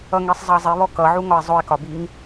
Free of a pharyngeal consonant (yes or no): no